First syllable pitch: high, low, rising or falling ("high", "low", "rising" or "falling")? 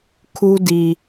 high